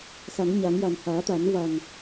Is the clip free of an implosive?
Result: yes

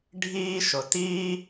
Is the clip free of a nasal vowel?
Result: yes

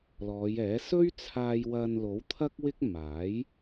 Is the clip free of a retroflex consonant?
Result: yes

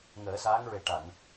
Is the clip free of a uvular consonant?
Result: yes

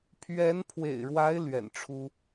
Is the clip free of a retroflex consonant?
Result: no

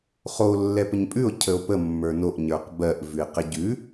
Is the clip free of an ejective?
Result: no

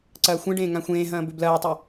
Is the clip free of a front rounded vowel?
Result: no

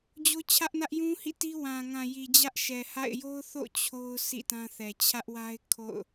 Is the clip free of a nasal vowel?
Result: no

